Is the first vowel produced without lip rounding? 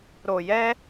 no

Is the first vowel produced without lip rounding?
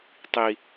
yes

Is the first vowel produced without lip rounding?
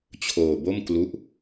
no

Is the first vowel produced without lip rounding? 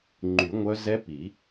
no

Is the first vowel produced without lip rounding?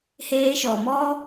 yes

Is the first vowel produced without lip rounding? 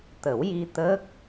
yes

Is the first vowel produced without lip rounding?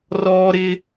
no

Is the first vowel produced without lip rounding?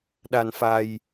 yes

